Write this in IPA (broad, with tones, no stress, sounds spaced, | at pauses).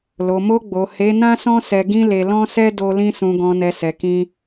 l o˨ m o˧ ɡ͡b o˨ h e˨˦ n ã˦ s ɔ̃˦ s ɛ˧ ɡ ĩ˦ l e˧ l ɔ̃˦ s ɛ˦ d o˧ l ĩ˧ s ũ˨ ɡ ɔ̃˨ n ɛ˨ s ɛ˨ k ĩ˧